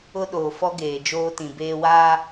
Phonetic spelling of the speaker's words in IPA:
ʊ˦ ɗ oː˨ f ɔ˦ ɡ eː˨ d͡ʒ oː˦ t ĩ˨ b eː˦ w aː˦

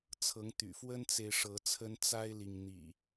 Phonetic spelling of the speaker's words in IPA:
t͡sʰ ɤ˨˦ ŋ t̪ y̰˨˩ f w ə˦ n t͡s e˨ ɪ̯ ʂ ɤ˨˦ t͡sʰ ə˦ n t͡s a˦ ɪ̯ l i˨ ŋ n̪ ḭ˨˩

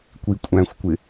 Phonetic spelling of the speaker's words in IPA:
kʷ i kʷʼ æ̃ xʷ kʷ ɪ

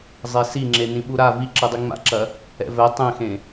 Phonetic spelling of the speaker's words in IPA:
zˤ e s i ŋ͡ǁ e n ĩ ɓ u ɾ a v i ǁ ɨ dˤ i ŋ͡m a̰ ǁ ɐ | ɛ̰ v ɛ tˤ ẽ x ẽ

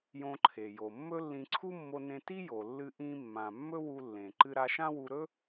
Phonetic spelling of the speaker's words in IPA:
j õ˧ ǃʰ e˩ j o˩ mː ɵ˥ lː ĩ˧ ǀʰ u˥ mː o˧ n ẽ˧ t i˥ j o˩ lː ɨ˧ ʔ ĩ˧ mː ã˩ mː ɵ˥ w u˧ lː ẽ˩ ǃ ɨ˧ ɾ a˧ ʃ ã˥ w u˧ ɾ ɵ˥

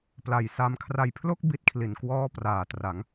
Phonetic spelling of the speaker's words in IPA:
p l a˨˩ j s a˧ m kʰ r a˨˩ j pʰ l o˥˩ k̚ b i˦˥ t̚ kʰ l i˩˦ n k w ɔː˥˩ p r aː˨˩ t r a˩˦ ŋ

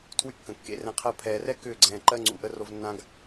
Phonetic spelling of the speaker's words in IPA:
tʰ w y˦ kː ə̃˨ kː ḛ˧ r ɛ̃˧ qʰ ɜ˦ pʰ ɛː˨ r ɛ˦ k ʏː˦˨ ɡ͡ǀ ɛ̃ː˨ ǃ ɜ˦ ŋ͡ǀ ṵ˨ ʔ ə˧ r o˧ v nː ã˧ ɡ

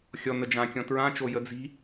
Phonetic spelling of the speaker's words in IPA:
xʲ ɔ n ə d͡ʒ ã kʲ ɔ̃ t ɹ ã t͡ʃ o j ə d͡z i̤

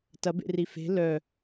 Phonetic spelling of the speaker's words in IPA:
t ɐ b ḛ r i f e̤ l œ

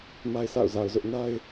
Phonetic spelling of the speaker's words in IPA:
m a˦ ɪ̯ s a̰˦˨ ʊ̯ z a˨ ʊ̯ z ʊ˦ ʔ n a˦ ɪ̯

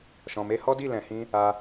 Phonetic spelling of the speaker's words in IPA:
ʃ ɔ̃˨ m e˧ h ɔ˦ d i˦˨ l ɛ̃˨ h ĩ˧ | a˧

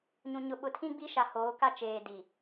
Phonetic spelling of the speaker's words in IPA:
ɲ ũ˨ ɲ ʊ˨ ɓ ʊ˨ tʰ ĩ˦ ɡ͡b i˦ ʃ a˨ h oː˨˦ k a˦ t͡ʃ eː˨ d i˨

